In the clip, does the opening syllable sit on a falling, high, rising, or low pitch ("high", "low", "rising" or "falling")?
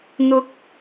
rising